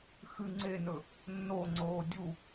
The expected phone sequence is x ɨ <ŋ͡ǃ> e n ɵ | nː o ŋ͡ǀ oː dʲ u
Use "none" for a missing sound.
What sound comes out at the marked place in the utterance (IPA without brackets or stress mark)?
ŋ͡ǀ